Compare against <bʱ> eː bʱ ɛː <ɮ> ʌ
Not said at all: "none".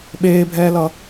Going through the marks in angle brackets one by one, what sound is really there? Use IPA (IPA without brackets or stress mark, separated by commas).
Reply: ɓ, l